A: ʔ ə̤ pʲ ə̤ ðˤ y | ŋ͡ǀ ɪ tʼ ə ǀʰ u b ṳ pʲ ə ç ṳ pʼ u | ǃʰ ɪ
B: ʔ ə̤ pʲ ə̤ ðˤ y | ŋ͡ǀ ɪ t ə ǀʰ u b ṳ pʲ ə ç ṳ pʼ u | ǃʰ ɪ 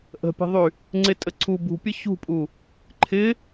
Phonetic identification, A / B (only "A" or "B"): A